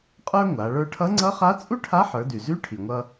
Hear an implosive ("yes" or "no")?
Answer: no